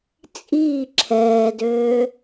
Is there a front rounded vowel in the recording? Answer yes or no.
yes